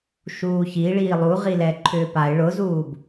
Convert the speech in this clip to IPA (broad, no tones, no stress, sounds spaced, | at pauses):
ʃ uː ç i ɭ iː lˠ u ʁ i l ɛ ǃʰ ʏː p a ɪ̯ ɭ ʊ z uː b